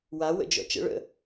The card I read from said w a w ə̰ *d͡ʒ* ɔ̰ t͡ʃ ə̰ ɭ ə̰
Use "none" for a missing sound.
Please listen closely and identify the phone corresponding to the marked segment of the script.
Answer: d͡ʒ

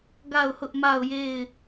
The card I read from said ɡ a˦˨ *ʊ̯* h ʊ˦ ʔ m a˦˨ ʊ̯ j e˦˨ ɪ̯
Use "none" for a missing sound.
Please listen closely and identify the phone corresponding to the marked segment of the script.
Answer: ʊ̯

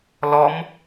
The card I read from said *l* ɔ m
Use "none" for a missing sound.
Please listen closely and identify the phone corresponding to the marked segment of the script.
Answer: l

